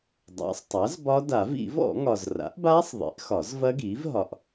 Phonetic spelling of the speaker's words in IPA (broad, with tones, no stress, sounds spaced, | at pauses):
dˤ a̰˩˥ sˤ tˤ a˩˥ z b ɒ˦˥ d a˨˩˦ v ḭ˨˩˦ v ɔ̰˨˩˦ ŋ ɒ˨ z r a̰˩˥ ʔ b aː˦˥ sˤ ðˤ ḭ˩˥ ʔ x ɒ˨˩˦ z v ɐ˦˥ ɡ iː˩˥ v ɦ ɒ˨ ʔ